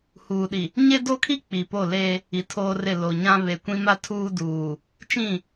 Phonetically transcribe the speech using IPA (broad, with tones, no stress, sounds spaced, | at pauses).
h uː˨ ɗ i˨ | ɲ e˦ d o˦ kʰ i˦ k͡p i˨ p o˦˨ l e˦ | i˨ tʰ oː˦ r ɪ˦˨ l o˨ ɲ ã˦ β e˨ kʷ ĩ˦ m a˦ tʰ uː˦ d uː˨ | t͡ʃ ĩ˦˨